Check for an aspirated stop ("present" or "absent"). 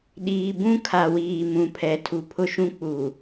present